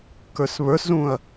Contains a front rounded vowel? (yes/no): no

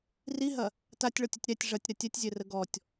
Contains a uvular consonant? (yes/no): no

